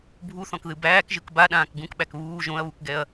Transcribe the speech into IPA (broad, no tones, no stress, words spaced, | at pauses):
bʱuθɔ̃kðɨ bæːkʒɨk baɗãːk ɡũkɓæk βuː ʒõɐ̯βukɡɛɐ̯